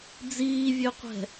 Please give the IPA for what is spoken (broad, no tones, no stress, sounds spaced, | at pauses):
d͡z iː vʲ ø qʷ ɛ̤